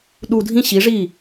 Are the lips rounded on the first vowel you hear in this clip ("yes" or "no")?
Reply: yes